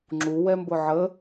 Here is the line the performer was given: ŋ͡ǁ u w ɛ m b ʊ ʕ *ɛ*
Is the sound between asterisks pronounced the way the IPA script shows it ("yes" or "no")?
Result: no